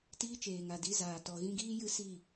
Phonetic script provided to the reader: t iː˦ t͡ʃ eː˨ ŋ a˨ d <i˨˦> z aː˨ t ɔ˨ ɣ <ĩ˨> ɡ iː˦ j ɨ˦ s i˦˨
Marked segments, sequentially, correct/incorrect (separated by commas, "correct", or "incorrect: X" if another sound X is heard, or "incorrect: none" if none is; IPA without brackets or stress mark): correct, incorrect: ĩ˧